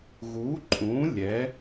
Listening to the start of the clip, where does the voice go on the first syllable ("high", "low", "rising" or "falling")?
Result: rising